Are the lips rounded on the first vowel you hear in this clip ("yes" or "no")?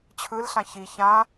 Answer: no